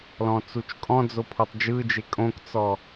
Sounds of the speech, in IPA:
l ɔ̃ t͡s u t͡ʃ kʼ ɔ̃ d͡z o pʰ o tˤ d͡ʒ ɯ d͡ʒ e kʼ õ k t͡s ɔ

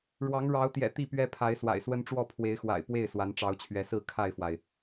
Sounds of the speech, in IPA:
ɻ w ɑ˨˦ ŋ ɻ ɑ˨˦ ʊ̯ t̪ j ɛ̰˨˩ t̪ i˥˨ p ɥ ɛ˦ pʰ a˨˦ ɪ̯ s w a̰˨˩ ɪ̯ s w ə˦ n ʈ͡ʂ w ɔ˥˨ pʰ w e˨˦ ɪ̯ x w a̰˨˩ ɪ̯ p w e˥˨ ɪ̯ s w a˨˦ n ʈ͡ʂ ɑ˨˦ ʊ̯ t͡ɕʰ ɥ ɛ˨˦ s ɹ̩˥˨ kʰ a˥˨ ɪ̯ f w a˩ ɪ̯

